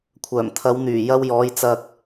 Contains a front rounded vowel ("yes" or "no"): yes